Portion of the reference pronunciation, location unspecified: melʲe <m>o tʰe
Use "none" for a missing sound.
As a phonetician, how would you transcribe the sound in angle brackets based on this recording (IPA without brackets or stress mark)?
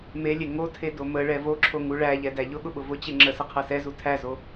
ŋ